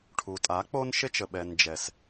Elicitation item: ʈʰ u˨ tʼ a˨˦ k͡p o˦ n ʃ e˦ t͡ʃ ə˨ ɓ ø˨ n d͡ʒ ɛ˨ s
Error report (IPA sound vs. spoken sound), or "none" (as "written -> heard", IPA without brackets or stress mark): ø˨ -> ɛ˨